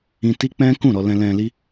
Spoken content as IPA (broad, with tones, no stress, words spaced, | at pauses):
ĩ˧ti˦k͡pɛ̃˦ kũ˦˨ɾɔ˧lɛ̃˧ lɛ̃˧li˦